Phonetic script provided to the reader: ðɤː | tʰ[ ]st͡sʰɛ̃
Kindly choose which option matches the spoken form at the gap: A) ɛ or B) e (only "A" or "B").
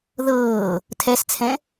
A